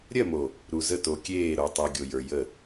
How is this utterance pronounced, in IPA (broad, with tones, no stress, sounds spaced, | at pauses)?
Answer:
ɾʲ ɜ˦˨ m o˨ | ɾ u˨ z ə˦˨ t o˨ kʲ eː˦˨ ɾ o˨ tˤ u˨ ɡʲ o˨ j ə˞˨ j ə˦˨